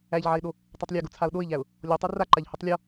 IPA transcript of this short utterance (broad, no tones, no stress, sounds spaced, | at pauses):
æ ʎ ʕ a ɪ̯ ɗ o | tˤ a tˤ lʲ æ ɡ o t͡sʰ a ʊ̯ ɗ o ɪ̯ ʎ æ ʊ̯ | lʲ ɔ tˤ o r a ǃ a ʎ h u tˤ lʲ ɔ